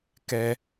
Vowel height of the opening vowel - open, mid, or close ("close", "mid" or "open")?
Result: mid